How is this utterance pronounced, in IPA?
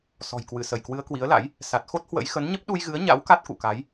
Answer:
s ɔ̤˨˩ j k w ɨ˧˩ s ə˧˩ j k w ɨ˨˦ ə̯ k w i˨˦ ə̯ l a̰˧˥ j | s a˨˩ t̚ x o˦˥ t̚ h w ə̰˧˥ j x ə˨˦ n ɲ ə˦˥ p̚ ɗ u˧ j ɣ ɨ˨˦ ə̯ ɲ a̰˧˥ w k a˦˥ t̚ k ṵ˧˨ k a˨˦ j

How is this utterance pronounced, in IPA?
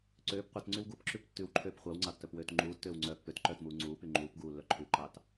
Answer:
ǀ øː p qʷ œ t ŋ͡ǀ y w ɡ u p ǁ ʉ p tː ʉ w ǃʰ øː p χʷ ɑ w ŋ͡ǀ ɑ tː œ p w øː t ŋ͡ǃ uː tː øː w ŋ͡ǀ œː pː ø t ǃ œː t m uː ŋ͡ǀ uː p y ŋ͡ǃ uː p ɡ uː lː œ ǃʰ ʉ ǃ ɑ t

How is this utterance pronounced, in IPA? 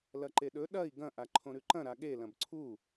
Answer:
l ɐ ǃ e ɗ ɵ ɗ ɐ i̯ ɡ ɐ̃ ʔ a ǃʰ õ ɾ ʉ ǃ ɐ̃ ɾ a ɠ e l ɐ̃ b ǀʰ u

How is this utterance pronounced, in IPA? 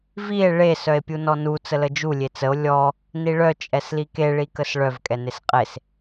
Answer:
v i e̯ ɭ e s œ e̯ pʲ u n ɔ n u t͡s ə l ə d͡ʒ u lʲ e t͡s ə o̯ lʲ ɔ | n i ɭ œ t͡ʃʼ ɛ s l i k e ɭ i k ə s ɭ œ v kʼ ɛ n e s qʼ e s

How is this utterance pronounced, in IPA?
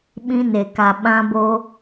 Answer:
ɓ ĩ˧ n e˨ k a˨ ɓ ã˧ b o˧

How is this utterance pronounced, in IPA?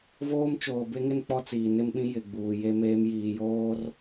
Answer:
v oː˦ m t͡ʃ oː˨ b e˦ ŋ ɪ˦ n k͡p ɔ˦ t͡s iː˨ n ɪ˦ m ɓ ĩ˦ j ɪ˨ ɡ͡b uː˨ j e˦ m eː˦ m j iː˨ j oː˦ r

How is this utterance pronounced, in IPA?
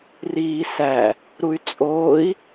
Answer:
r iː s æ | ɾ u y̯ t͡sʼ oː i̯

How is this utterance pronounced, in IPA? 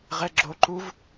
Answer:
ʁ ɛ ɡ͡ǁ o ǃ u v

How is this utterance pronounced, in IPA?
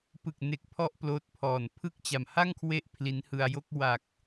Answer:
p ɯ˨˩ k̚ n e˨˩ k̚ pʰ ɔ˦˥ ʔ p l oː˦˥ t̚ pʰ ɔː˨˩ n pʰ ɯ˥˩ k̚ t͡ɕ a˨˩ m h a˥˩ ŋ kʰ w e˦˥ ʔ pʰ l i˦˥ n h ɯ˧ a̯ j o˥˩ k̚ w a˨˩ k̚

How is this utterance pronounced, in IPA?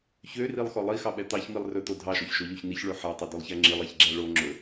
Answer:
ç ø r i lˠ x ɔ lˠ i x ɑ ɓ ɛ t̪ ɑ ç m i lˠ r ɵ t̪ o dʱ ɑ ʃ ɔ ç ʃ o ʎ o ç n i ç ɭ ø ħ æ tˤ ɛ d ø lˠ ç æ ŋ͡ǁ i lˠ æ ç ɡ͡ǁ æ ɭ o ŋ͡ǁ ɵ

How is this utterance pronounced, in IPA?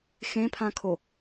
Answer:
x ẽ pʰ ã kʰ o

